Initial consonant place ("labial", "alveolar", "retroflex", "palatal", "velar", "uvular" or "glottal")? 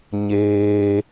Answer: palatal